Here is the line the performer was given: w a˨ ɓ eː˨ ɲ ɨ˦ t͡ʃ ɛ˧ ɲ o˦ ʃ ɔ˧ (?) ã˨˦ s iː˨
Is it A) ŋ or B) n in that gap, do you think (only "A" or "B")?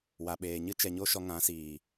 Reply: A